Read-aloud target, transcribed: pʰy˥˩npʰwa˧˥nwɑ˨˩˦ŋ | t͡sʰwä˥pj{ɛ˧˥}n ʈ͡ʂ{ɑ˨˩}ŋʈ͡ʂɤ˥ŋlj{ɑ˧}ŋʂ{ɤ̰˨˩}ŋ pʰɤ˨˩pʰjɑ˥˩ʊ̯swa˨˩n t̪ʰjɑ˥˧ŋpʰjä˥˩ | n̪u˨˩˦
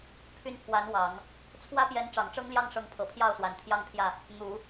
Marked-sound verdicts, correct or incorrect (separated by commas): correct, correct, incorrect, incorrect